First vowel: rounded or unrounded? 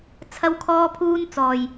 unrounded